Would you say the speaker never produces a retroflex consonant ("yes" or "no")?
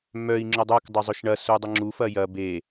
no